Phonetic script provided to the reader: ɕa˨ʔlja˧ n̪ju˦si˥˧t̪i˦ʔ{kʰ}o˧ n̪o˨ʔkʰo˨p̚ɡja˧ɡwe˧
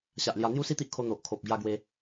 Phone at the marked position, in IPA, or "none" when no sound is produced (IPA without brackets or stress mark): kʰ